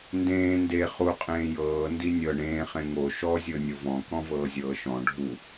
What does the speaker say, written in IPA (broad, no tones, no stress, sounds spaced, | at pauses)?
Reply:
n d ẽː n d e χ u qʼ ẽː j ɤː n d i nʲ ɤ ɳ ẽː χ ẽ ŋ o ʃ ɔ zʲ ɤ nʲ o v ɔ̃ k ɔ̃ v ɤː zʲ ɤː ʃ ɔ̃ ɖʱ u